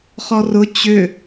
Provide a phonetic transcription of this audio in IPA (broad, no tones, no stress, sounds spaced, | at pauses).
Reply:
χ ɔ r ʊ t͡ɕ ʏ